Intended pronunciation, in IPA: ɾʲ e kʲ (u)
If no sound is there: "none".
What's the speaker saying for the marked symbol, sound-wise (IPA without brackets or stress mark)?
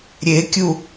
u